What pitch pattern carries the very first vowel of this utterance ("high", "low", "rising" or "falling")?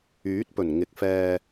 rising